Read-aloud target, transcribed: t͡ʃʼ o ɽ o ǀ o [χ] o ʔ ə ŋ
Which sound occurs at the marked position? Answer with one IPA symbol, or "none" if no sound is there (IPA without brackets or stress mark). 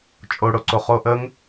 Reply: χ